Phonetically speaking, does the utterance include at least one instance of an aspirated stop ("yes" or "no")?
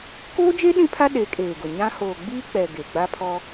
yes